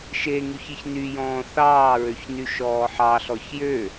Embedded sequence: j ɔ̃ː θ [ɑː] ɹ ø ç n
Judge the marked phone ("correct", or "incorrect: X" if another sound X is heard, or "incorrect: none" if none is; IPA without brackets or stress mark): correct